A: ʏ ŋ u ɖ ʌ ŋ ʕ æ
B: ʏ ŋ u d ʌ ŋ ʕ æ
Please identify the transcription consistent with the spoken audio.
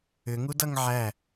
B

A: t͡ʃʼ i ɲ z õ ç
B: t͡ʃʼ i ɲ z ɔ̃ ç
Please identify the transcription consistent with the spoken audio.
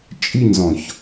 B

